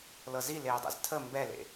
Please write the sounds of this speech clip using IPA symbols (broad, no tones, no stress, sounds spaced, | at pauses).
l ɤ z i l eː dˤ ɛ̰ z tʰ ə m b ɛ l ḛ